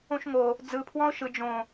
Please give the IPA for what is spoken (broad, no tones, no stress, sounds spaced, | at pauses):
õ ʃ ŋ o | d͡z ɯ pʰ w ɔ̃ ʊ̯ ʃ ɯ d͡ʒ õ